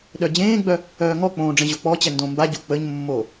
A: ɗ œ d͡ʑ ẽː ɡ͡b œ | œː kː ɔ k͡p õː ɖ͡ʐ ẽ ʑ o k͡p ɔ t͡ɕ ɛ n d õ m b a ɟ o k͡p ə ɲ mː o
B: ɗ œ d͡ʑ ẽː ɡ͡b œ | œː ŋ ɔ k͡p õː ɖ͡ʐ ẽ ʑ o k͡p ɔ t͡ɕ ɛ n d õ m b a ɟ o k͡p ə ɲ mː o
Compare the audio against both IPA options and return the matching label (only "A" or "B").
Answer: B